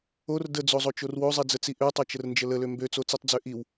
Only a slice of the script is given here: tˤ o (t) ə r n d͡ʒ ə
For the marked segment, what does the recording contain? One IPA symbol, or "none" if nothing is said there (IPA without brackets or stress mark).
t͡ʃ